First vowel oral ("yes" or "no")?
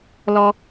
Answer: yes